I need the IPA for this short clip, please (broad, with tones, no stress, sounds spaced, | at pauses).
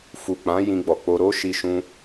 f u˨ k͡p ã˨˦ j ĩ˧ ɡ͡b ɔ˨ k͡p o˧ ɾ o˦ ʃ i˧ ʃ ũ˧